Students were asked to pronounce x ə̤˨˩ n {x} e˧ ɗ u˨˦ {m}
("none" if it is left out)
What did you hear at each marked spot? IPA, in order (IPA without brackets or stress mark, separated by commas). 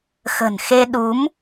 x, m